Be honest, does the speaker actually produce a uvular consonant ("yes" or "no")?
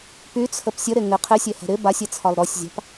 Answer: yes